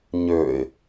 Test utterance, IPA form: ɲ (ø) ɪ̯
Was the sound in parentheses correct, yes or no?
yes